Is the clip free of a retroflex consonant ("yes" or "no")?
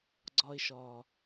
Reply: yes